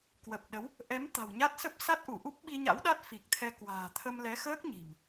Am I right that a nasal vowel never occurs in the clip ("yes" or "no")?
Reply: yes